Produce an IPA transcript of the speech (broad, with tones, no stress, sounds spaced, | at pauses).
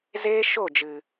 z eː˦ ʃ o˦˨ d͡ʒ ɨ˨